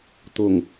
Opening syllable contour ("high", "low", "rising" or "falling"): low